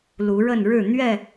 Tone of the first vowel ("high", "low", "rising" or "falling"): rising